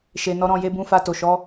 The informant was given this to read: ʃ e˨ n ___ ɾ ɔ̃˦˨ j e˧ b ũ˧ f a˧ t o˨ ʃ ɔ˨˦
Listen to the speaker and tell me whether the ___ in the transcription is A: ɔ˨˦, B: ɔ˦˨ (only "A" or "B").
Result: A